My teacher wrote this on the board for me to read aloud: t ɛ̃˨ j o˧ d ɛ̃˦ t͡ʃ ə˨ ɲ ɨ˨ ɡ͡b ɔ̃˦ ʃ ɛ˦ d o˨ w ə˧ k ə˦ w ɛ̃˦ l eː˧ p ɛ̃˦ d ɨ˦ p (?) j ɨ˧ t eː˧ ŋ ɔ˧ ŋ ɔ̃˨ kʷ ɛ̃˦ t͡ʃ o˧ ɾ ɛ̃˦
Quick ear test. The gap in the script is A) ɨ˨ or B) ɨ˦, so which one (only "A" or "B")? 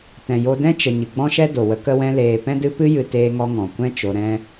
B